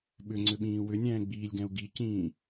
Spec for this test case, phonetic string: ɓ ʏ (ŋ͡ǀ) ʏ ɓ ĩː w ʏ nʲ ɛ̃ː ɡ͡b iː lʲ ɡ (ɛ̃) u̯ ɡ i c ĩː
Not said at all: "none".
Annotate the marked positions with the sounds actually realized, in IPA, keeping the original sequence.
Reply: ŋ͡ǀ, ɛ̃

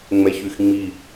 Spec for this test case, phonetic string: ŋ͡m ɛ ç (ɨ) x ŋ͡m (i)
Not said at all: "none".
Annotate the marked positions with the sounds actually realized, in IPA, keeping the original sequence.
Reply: y, i

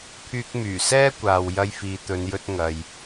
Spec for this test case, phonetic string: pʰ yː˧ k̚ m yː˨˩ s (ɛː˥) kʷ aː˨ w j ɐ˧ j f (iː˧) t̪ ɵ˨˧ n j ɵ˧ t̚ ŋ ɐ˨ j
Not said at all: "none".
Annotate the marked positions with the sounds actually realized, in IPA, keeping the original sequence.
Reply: ɛː˥, iː˨

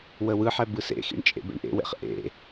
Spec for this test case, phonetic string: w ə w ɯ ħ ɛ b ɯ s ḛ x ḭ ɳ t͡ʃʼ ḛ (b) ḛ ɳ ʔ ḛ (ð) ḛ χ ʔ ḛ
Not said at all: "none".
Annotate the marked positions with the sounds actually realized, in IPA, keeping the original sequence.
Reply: b, w

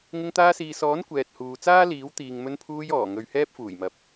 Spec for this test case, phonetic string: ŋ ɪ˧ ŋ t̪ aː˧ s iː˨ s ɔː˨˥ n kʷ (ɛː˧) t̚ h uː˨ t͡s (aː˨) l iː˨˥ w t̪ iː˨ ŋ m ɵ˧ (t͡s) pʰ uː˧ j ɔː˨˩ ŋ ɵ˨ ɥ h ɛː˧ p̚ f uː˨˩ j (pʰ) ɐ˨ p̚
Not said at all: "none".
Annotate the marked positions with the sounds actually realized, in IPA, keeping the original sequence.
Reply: ɛː˨, aː˥, n, m

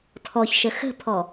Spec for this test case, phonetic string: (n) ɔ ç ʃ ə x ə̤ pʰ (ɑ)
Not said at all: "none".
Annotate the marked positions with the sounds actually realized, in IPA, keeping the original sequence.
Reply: tʰ, ɔ

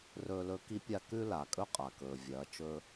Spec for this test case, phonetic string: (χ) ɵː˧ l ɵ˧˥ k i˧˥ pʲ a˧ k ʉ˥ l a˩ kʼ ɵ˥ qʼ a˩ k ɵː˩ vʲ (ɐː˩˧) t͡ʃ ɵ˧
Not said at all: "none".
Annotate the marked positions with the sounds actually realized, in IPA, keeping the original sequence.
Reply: r, ɐː˩˧

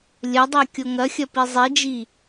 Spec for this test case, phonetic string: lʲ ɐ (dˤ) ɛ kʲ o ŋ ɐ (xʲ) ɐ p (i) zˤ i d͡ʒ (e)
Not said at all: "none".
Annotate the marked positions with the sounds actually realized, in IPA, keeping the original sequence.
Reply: dˤ, xʲ, i, i

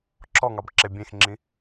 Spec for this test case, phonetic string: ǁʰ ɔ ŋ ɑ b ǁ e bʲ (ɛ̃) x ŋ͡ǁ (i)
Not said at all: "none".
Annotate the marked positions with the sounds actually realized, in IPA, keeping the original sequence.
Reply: ẽ, ĩ

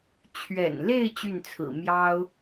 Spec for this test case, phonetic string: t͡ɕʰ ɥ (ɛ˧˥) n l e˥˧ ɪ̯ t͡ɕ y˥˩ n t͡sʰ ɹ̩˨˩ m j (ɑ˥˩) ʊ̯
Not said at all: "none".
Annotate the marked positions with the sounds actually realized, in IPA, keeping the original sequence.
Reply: ɛ̰˨˩, ɑ˥

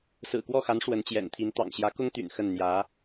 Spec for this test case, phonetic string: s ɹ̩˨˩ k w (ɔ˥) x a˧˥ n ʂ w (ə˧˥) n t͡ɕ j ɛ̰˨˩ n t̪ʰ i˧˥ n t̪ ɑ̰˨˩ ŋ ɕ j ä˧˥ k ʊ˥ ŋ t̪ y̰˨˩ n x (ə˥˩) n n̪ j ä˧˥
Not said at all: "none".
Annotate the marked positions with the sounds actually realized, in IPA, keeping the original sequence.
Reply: ɔ˥˩, ə˧˥, ə˥˩

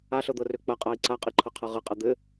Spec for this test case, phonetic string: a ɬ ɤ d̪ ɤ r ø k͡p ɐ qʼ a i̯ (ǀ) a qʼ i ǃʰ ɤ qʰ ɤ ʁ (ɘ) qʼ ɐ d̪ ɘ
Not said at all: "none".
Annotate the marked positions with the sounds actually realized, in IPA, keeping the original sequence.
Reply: ǀ, ɘ

